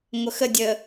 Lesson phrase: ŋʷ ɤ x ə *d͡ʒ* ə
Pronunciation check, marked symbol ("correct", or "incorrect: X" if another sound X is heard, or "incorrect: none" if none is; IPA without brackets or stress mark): incorrect: dʲ